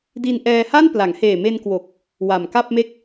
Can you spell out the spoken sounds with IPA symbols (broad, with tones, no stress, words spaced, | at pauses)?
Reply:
di˧nʔɛː˧ha˥˩n pla˩˦ŋheː˨˩me˧n kwo˨˩k̚ | wa˨˩mka˥˩p̚me˥˩k̚